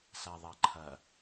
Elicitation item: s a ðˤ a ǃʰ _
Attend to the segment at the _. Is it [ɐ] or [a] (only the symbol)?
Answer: ɐ